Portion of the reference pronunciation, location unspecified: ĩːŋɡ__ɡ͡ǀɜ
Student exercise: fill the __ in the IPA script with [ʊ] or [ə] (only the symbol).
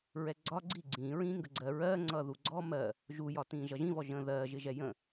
ə